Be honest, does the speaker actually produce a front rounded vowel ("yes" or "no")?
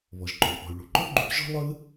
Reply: yes